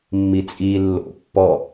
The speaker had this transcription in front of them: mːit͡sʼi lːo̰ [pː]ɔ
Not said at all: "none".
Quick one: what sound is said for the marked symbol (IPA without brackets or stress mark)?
pː